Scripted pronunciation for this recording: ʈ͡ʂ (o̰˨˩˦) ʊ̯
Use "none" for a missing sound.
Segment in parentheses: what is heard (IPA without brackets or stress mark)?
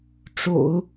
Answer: o̰˨˩˦